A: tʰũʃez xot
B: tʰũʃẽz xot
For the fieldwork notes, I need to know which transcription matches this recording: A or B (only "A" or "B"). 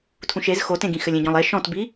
A